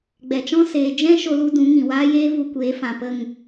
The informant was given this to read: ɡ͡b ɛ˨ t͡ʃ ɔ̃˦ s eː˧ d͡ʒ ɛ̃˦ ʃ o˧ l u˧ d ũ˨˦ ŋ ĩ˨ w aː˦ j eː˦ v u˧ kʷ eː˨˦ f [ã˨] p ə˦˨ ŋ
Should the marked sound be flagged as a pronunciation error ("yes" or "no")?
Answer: no